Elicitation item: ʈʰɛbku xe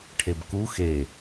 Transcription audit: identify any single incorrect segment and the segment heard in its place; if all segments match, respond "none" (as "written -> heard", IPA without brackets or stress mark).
ɛ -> e